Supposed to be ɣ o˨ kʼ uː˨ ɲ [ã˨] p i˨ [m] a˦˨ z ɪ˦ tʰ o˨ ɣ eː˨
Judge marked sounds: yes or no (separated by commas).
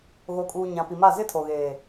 yes, yes